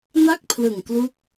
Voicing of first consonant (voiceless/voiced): voiced